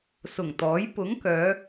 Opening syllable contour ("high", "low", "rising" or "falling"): low